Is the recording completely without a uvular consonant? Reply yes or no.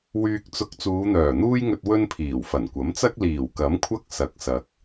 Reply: yes